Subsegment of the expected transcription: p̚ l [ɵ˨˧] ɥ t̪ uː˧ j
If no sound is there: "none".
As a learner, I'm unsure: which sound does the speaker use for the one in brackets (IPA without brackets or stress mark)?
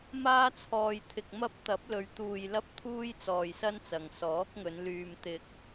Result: ɵ˨˧